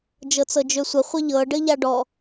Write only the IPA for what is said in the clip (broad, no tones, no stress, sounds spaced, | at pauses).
d͡ʒ ɤ t͡s ɤ d͡ʒ ø sʷ ə χʷ ə ʎ ɤ ɖ ɘ ʎ a ɖ ɔ